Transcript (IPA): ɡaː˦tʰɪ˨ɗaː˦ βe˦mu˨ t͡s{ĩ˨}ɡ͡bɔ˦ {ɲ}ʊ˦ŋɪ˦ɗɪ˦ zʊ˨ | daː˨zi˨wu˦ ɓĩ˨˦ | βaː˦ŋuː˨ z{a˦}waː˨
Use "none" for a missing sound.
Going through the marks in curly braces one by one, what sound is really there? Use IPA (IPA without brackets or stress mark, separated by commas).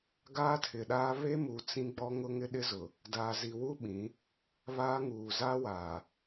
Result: ĩ˦, ŋ, a˦